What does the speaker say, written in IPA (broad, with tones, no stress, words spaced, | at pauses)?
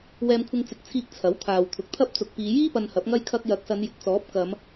wɛː˧mkʷʰɪ˧ŋt͡sɪ˨˥k̚t͡sʰiː˧k̚ t͡sʰɐ˨˥wt̪ʰaː˨wt̪ʰʊ˨˥k̚t̪ʰɐ˥p̚ t͡sʊ˨k̚piː˨˧jiː˥ pɐ˧nhɐ˨˥p̚ŋɐ˥j kʰɐ˧k̚jɐ˨k̚sɐ˨˧n jɪ˨˥k̚t͡sɔː˨˥p̚kɐ˨˧m